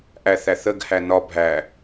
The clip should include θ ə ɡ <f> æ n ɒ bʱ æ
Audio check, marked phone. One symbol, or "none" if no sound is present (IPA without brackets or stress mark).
h